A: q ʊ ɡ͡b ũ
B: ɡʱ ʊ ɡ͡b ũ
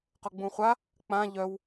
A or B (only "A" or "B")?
A